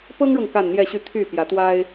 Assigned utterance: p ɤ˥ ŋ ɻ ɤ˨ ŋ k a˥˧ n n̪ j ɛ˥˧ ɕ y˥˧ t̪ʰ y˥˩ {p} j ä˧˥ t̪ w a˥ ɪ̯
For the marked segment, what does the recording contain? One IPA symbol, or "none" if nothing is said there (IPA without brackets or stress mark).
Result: p